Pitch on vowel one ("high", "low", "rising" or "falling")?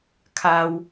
low